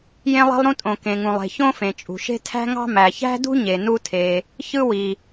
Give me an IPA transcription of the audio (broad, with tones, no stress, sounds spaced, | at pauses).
j ẽ˥ lˠ e̤˥ lˠ ɾ ũ˥ tʼ õ˩ k ẽ˩ ŋ ũ˩ lˠ e̤˩ ç õ˥ f ẽ˩ t͡ʃʼ ṳ˩ ʃ e̤˥ tʰ æ̤˥ ŋ ɑ̤˥ m æ˩ ç æ̤˥ d ṳ˥ ɲ e˩ n u˥ tʰ e˩ | ç ɯ˥ w i˩